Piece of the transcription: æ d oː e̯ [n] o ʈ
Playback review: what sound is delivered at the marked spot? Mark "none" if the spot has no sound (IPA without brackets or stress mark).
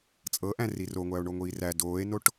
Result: n